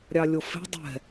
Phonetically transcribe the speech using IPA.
ɾʲ ɑ lʲ o f e̤ dˤ ɛ̤

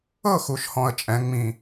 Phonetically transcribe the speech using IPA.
ɤ˥˩ x u˨˩ ʃ h ɔ̃˨˩ ə̯ t͡ʃʼ ɛ̃˩˧ ŋ͡m ĩ˨˩

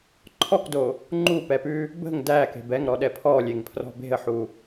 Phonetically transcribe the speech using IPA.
ǃʰ ɔ k d o | ŋ͡ǃ u p ɛ p ʉ | b ə̤ ŋ d æ k e̤ b ɛ ŋ ɾ ɔ ɗ ɛ pʰ ɔ lʲ e ŋ pʰ r ɔ̤ b e̤ ə̯ ħ u

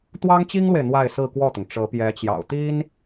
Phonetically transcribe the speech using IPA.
t̪ w ɑ˥ ŋ t͡ɕ i˥ ŋ l w e˨ ɪ̯ n̪ w a˥˧ ɪ̯ s ɹ̩˥˧ k w ɔ˥˩ t̪ ʊ˩ ŋ ʈ͡ʂ ɤ˧˥ p j ɛ˧˥ t͡ɕ j ɑ̰˨˩ ʊ̯ t̪ i˥ n

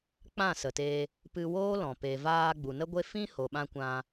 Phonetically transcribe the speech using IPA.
k͡p ã˦˨ s ə˨ t eː˧ | p ɨ˧ w oː˦ l ɔ̃˨ p e˨ v aː˧ ɡ͡b u˨ n ə˦ ɡʷ e˦ f ĩ˦ h o˨ ɓ ã˧ kʷ ã˧

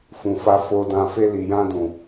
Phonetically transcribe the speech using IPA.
f ũ˨ f a˧ f o˧ d ã˧ f e˧ l i˨ j ã˧ d ũ˨

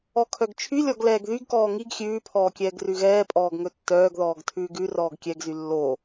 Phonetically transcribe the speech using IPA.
ɔ kʰ œ ɡ t͡ʃʰ y lʲ ɔ ɡ l ɛː ɡ ð y ɡ k ɔː ŋ i ɡ xʲ ʉː pʰ ɔː kʲ ɛː ɡ r ʉ ɣ ɛː pʼ ɔː ɡ ŋ ɵ tː œː ɡ ð ɔː ɡ tʰ ʉː ɡ ʉ r ɔː ɡ kʲ ɛ ɡ z y lː o

